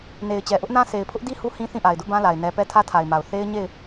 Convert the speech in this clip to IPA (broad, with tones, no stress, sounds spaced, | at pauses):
n e˨ ɪ̯ t͡ɕ ɛ˨ ʔ ʊ˦ ʔ n ã˦ s e˨ ɪ̯ pʰ ʊ˦ ʔ d i˦ h u˦ h ĩ˦ θ ĩ˦˨ ʔ a˨ ɪ̯ d ʊ˦ ʔ b ã˦ l a˨ ɪ̯ n ɛ˨ p ɛ˦ tʰ ä˦ tʰ a˨ ɪ̯ m a˨ ʊ̯ θ e˦ ɪ̯ ɲ e˦˨ ɪ̯